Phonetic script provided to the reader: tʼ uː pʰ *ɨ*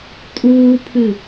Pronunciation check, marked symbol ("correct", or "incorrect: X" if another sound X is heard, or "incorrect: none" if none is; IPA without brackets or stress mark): correct